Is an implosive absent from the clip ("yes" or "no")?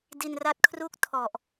yes